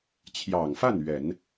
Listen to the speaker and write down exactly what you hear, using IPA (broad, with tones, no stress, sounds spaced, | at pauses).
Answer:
t͡ɕʰ j ɑ˨˩ ŋ f a˥˩ n ɥ ɛ˨˩˦ n